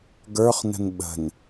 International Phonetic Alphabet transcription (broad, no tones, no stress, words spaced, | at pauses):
ɡə˞χnə̤n ɓə̤n